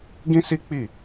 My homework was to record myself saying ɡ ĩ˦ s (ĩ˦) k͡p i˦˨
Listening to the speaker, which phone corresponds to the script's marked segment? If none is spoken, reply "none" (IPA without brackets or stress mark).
i˦